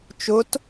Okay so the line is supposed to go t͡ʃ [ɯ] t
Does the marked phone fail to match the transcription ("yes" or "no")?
yes